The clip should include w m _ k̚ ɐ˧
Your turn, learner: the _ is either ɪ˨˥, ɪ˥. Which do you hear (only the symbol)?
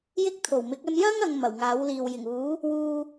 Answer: ɪ˨˥